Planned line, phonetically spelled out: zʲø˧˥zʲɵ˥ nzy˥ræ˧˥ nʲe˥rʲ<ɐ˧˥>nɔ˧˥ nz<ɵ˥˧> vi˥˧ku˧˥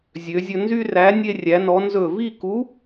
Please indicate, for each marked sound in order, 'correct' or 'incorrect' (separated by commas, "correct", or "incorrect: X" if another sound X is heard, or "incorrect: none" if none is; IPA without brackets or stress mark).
incorrect: æ˧˥, correct